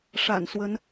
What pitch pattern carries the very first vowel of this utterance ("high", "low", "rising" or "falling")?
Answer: low